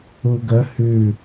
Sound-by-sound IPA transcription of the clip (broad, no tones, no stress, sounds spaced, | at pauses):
u ɡ ə h ʉ